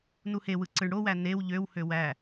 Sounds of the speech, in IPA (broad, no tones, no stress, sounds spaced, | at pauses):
n u h e w ɯ ǀ ɯ ɳ ɽ o w æ n e w ʎ ø w h ø w æ